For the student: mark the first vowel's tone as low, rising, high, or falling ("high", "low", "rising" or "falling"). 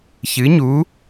rising